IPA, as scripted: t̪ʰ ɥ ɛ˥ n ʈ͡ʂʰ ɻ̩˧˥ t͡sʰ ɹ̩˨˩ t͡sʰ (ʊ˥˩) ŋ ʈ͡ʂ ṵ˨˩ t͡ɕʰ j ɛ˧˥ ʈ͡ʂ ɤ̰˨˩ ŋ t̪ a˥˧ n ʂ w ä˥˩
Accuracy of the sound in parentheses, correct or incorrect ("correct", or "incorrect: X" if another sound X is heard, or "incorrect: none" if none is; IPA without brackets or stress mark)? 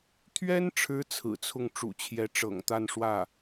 correct